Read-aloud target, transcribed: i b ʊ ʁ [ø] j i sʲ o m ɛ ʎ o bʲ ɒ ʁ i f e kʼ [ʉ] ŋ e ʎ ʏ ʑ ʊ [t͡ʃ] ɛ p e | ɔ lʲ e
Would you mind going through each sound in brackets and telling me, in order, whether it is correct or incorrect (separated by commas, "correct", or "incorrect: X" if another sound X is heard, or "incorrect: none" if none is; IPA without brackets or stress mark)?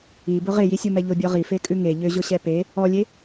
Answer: incorrect: e, correct, incorrect: ɕ